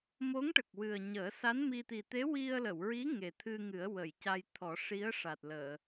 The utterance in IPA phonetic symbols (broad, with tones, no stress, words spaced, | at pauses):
mo˧˥ŋʈə˨˩k̚ wɨ˨˩ə̯ ɲəː˨˩˦sa˧˥n mi˧ t̪i˨˩t̪e˧˥ wi˧ə̯lə˨˩˨wɹi˧˥ ŋe˨˩t̪ʰɨ˧ŋɨ˨˩˦ə̯wə˨˩˨j ca˧j t̪ʰɔ˨˩˦ʂi˧˥ə̯ ʂa˨˩t̚ləː˨˩˨